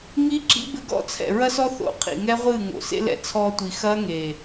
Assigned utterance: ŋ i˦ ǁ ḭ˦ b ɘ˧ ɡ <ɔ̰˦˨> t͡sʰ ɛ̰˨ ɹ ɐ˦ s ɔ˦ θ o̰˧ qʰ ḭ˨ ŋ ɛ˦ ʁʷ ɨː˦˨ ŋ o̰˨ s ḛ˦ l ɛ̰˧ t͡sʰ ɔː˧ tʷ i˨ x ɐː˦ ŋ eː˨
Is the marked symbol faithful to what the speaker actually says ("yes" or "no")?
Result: yes